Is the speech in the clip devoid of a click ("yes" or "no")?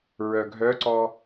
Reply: no